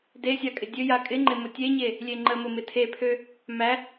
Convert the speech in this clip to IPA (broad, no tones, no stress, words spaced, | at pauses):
desʲa kʼɪdʲøja kʼɪŋ͡ǃɪ mʊtʲeɲe | lʲeŋ͡ǃəmʊ mɪtʰepʰø | mæ